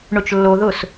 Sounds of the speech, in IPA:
ɳʊt͡ʃlːoðʊs

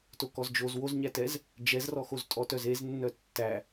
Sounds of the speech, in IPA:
tokɔzd͡ʒoz woz ɲætɛz | d͡ʒɛzrɔxoz tʼɔtœzeznːœ tːæ

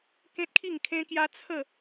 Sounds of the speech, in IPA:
kẽ˦t̚kʰi˥˧ŋkʰẽ˦kja˦ t͡sʰə˥˧

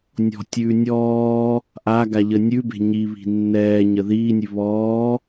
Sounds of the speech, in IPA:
nʲɔ̤tʲʉː nʲɔː | ʔa ɡaʎənʲʉbe̤ ɲiβi̤ nːɛːɲə ðiːnʲʉ βɔː

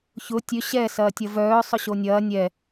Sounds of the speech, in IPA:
çʊ tʲø ɕɛ sɐːtʲɐvœː sˤʊɕonʲɐː nʲɛ

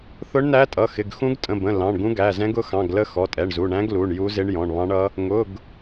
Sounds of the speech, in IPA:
θʊ˧˥ɳnæ˧˥tʼʌ˩˧˩xɪ˩˧˩ɡ xũ˧˥ɡtʼə̃˩˧˩bə̃˩˧˩ lɑ̃˩˧˩ɳɡũ˧˥ɡæ˩˧˩zɛ̃˧˥ɡ ʊ˧˥xɑ̃˩˧˩ɡlə˧˥ xɔ˩˧˩tʼɛ˩˧˩ɳzu˩˧˩ ɳæ̃˧˥ɡlu˩˧˩ɳ ju˧˥zɪ˧˥ɳjɔ̃˩˧˩ɳ βɑ̃˧˥ɳʌ˧˥ | ŋʊ˩˧˩ɡ

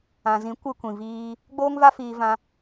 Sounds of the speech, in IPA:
ã˨zĩ˨˦ kʷɨ˧kʷĩ˨viː˧ | ɡ͡boː˦ŋva˦ fiː˧vã˧

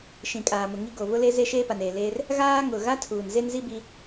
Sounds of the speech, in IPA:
ʃĩ˨ kʼaː˨mʊ˨ŋi˦ ɡo˨βʊ˦le˦ze˦ ʃeː˦pa˨neː˨leː˦r | ɣaː˦ŋʊ˨ ɣa˦tʰuː˨nze˦nzi˦ bi˦

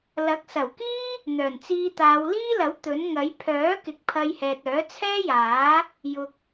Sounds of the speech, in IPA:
lɐ˨˥k̚sɐ˨˩wkiː˥ | n̪œː˨˩nt͡siː˧t̪aː˨˧w liː˥lɐ˨˥w t̪ɵ˨˥nŋɐ˨˥j pʰœː˨˥kɪ˨k̚ pʰɐ˧jhɛː˨t̚ œː˨˥t͡sʰɛː˥jaː˨˥ | jʊ˨k̚

